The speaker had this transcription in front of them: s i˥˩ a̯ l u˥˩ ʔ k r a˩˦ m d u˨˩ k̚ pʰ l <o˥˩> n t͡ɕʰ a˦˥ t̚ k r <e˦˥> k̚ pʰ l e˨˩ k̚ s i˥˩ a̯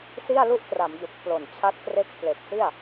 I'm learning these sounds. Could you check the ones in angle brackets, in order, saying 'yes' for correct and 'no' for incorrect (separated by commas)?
no, yes